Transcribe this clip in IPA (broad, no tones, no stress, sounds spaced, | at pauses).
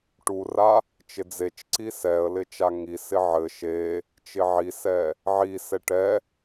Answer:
ʈ u r a | t͡ʃ ɪ d͡z e t͡ʃ ǀ i s ɛ ə̯ l ɪ t͡ʃ a ŋ i s ɪ ʕ ɘ ʃ e | t͡ʃ ɪ ʕ i s ɛ | ʕ i s ɛ ʈ ɛ